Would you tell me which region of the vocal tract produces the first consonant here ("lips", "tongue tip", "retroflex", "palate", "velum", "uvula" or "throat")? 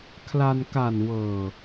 velum